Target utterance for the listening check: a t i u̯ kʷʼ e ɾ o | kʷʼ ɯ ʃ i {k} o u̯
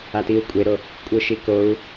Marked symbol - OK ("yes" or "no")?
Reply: yes